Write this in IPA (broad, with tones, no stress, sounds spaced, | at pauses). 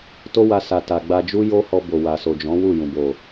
t o˦ w a˧ s a˨ t a˨ ɡ͡b a˧ d͡ʒ u˦ j o˦ h ɔ˧ b o˨ w a˨ s o˨ d͡ʒ ɔ̃˨˦ w u˦˨ j ũ˨ b o˨